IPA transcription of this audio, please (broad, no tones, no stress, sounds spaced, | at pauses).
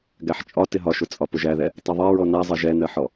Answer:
ɡ æ ħ t͡ʃʼ ɒ t ɪ ɦ ɒ ʃ ʊ t͡sʼ ɒ p ʊ ʒ æ ð ɛ | tˤ ɪ ðˤ ɛ ɹ ɔ n æ zˤ ʌ ʒ ɛ n ɜ ħ ɔ